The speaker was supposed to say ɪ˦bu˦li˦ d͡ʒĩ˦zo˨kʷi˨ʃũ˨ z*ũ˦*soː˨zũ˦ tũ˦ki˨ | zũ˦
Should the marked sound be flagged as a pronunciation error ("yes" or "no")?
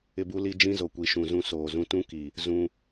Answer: no